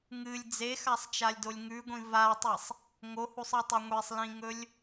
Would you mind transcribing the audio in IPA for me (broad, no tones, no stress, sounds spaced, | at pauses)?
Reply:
ŋ ɨ lʲ d͡z e x a sˤ t͡ʃ a lʲ d o lʲ ŋ ʉ ɡʷ ĩ v a tˤ i sˤ | ŋ o h u sˤ ɨ tˤ ɵ ŋʷ e sˤ l ĩ ŋ ɵ lʲ